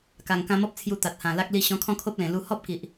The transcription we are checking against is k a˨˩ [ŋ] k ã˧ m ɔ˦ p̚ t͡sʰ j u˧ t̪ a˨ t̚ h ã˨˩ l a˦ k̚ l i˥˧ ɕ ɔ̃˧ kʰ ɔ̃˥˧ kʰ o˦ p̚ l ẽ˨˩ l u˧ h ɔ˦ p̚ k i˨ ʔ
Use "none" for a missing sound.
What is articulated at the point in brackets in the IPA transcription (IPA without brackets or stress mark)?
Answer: ŋ